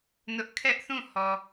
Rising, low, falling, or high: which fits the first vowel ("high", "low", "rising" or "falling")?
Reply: high